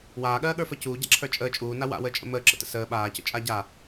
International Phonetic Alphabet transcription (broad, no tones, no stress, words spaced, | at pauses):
waːɠɜːɠə˞ fɜcuː ɟa̰ǁʰə˞t͡ʃʼəː t͡ʃʼuːna wa̰wəːt͡ʃʼə̰ məːǁə̰tə̰ səː ɓaːcə̰ t͡ʃʼaɟa